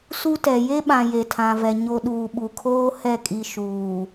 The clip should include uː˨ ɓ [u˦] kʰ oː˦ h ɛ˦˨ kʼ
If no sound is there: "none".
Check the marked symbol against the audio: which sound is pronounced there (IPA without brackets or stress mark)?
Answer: u˨